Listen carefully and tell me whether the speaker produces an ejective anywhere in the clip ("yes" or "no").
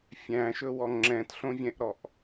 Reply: no